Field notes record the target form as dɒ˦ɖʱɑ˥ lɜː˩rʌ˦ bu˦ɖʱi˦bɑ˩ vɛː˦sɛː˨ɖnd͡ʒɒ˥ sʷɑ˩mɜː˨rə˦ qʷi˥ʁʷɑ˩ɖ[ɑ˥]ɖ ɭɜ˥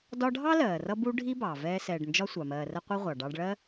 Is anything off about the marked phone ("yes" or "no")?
yes